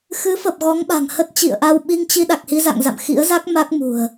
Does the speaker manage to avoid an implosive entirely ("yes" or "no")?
no